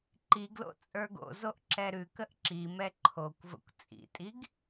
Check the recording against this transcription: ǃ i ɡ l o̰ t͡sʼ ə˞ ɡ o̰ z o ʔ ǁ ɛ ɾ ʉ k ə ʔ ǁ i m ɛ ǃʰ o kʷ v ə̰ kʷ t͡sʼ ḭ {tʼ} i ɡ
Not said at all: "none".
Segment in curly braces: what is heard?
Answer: tʼ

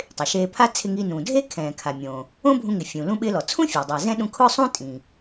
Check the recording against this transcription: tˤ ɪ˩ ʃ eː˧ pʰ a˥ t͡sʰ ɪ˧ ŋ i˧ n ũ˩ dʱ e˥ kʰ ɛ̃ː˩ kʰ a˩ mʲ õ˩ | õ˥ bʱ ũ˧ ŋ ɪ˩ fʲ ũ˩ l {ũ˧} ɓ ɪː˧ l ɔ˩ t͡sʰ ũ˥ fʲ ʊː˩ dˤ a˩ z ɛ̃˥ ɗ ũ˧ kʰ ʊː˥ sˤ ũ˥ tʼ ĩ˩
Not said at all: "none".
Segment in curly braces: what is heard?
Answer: ũ˧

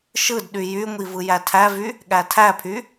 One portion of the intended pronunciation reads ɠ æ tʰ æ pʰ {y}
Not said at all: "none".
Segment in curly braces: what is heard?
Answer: y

